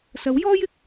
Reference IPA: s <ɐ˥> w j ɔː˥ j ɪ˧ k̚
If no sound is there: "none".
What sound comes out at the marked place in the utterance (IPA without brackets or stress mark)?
ɐ˨˥